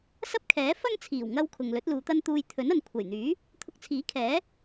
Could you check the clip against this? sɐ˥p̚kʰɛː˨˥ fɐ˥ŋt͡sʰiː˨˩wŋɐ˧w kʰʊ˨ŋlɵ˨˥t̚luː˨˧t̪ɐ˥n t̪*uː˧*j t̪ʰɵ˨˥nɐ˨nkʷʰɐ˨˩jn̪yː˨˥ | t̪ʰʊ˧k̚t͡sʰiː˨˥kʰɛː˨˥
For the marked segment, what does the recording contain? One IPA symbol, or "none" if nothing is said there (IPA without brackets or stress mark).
uː˧